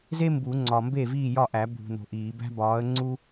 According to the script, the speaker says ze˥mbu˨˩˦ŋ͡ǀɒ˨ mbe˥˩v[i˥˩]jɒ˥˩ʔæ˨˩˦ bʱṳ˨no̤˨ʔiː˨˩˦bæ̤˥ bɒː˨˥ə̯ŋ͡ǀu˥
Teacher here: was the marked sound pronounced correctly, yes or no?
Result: no